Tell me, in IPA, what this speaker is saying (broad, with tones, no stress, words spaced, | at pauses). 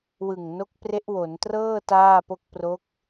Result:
wɯ˨˩ŋ no˦˥k̚pre˦˥ʔwo˩˦ntrɤː˥˩ taː˥˩po˥˩k̚ pro˦˥k̚